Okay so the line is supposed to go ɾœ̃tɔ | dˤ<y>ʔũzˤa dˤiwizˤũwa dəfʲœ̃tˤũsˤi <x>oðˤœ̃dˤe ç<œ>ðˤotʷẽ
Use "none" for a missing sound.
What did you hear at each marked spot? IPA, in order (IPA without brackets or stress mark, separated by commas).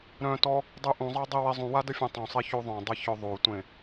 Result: y, ç, œ